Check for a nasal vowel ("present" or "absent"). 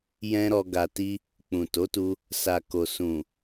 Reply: present